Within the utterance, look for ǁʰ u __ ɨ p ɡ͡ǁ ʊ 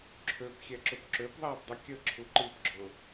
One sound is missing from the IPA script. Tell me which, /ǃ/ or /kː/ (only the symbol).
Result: ǃ